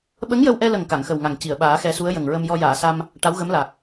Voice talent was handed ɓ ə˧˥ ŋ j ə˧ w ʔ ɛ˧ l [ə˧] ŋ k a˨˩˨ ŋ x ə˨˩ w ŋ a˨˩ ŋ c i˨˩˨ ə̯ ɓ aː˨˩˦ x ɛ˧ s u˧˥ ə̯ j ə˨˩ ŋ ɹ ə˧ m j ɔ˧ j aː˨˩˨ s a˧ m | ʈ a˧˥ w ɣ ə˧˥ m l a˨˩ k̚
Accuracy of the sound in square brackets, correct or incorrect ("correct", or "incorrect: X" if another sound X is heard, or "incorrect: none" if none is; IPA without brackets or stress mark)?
incorrect: ə˨˩